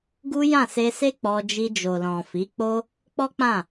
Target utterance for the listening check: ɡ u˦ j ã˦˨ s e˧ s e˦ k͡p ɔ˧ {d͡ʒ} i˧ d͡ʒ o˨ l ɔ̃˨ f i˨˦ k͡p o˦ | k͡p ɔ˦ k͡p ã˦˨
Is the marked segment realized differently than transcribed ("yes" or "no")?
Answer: no